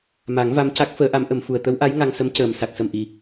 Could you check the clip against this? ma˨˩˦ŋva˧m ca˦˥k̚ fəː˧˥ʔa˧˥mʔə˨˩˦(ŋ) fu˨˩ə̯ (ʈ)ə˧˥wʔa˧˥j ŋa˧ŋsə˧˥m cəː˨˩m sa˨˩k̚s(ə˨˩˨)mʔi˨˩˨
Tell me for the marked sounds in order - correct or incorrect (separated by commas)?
incorrect, incorrect, incorrect